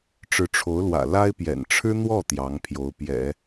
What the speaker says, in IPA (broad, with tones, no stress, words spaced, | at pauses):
ʈ͡ʂɻ̩˧˥ʈ͡ʂʰo˧˥ʊ̯lwä̰˨˩ la˥ɪ̯pjɛ̰˨˩n ʈ͡ʂʰɻ̩˥n̪wɔ˥˩ t̪jɑ˧˥ŋpʰjo˧˥ʊ̯pjɛ̰˨˩˦